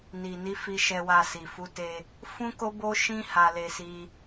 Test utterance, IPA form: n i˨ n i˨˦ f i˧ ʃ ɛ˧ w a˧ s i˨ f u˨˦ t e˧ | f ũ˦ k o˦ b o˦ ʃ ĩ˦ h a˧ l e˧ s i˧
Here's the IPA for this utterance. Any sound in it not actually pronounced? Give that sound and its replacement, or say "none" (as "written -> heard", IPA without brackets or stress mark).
none